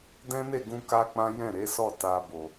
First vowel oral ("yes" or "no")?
no